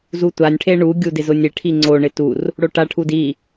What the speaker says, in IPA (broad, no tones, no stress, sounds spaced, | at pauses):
z u tʷ a nʲ ʈʰ e ɳ u ɡʲ u d ɪ z ʊ nʲ e ʈʰ i ŋ͡ǀ o ɳ ɪ t u r | ɽ o ʈ a ʈʰ u d i